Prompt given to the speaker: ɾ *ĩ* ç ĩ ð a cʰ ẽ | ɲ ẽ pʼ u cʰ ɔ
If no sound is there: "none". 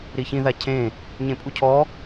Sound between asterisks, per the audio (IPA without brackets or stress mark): i